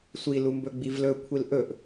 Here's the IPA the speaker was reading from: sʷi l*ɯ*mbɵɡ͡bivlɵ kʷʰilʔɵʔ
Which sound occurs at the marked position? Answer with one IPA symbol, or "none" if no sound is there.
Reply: u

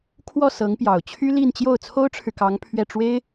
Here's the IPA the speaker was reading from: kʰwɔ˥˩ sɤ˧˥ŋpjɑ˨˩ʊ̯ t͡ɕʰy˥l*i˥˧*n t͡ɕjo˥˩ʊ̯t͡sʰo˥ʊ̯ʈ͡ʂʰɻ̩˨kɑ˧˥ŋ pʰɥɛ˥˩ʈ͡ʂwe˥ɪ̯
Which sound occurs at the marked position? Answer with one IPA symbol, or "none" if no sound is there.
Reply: i˥˧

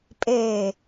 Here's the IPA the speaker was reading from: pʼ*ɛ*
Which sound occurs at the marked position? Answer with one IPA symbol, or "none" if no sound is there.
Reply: e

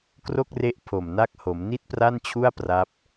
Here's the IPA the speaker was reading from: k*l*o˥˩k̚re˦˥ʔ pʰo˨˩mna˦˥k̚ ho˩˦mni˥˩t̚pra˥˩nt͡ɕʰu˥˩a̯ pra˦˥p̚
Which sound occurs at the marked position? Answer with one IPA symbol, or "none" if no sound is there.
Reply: r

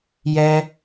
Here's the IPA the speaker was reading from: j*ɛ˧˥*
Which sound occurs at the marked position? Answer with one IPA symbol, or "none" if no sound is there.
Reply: ɛ˥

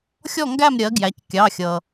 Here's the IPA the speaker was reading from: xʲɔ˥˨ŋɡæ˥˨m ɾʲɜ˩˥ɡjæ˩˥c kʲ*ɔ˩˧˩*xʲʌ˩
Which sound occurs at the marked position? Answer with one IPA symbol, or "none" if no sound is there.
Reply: ɑ˩˧˩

